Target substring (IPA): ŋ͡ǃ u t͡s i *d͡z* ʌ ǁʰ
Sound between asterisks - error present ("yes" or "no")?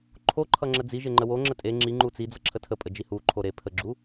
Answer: no